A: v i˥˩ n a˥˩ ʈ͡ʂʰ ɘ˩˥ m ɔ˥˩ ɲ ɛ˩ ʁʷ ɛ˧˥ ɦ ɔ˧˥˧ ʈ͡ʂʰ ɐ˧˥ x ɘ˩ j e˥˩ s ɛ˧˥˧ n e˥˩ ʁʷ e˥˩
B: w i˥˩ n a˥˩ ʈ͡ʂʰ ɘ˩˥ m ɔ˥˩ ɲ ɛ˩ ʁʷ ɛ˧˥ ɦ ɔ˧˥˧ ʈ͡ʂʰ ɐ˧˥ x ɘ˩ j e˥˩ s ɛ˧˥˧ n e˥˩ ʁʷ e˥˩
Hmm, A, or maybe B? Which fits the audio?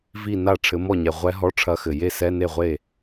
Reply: A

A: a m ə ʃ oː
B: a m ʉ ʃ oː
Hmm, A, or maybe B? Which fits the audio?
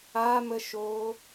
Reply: A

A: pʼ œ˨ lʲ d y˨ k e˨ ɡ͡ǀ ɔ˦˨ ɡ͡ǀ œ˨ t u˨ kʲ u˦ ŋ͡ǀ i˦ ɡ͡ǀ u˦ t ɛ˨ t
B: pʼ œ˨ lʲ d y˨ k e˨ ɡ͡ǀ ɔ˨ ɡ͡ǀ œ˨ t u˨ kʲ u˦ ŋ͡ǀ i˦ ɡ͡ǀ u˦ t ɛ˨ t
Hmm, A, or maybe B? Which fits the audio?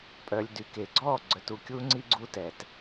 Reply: A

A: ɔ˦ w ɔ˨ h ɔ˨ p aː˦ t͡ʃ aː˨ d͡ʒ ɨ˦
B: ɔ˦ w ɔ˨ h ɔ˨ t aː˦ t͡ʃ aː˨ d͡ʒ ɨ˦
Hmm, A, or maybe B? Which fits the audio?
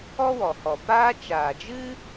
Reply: A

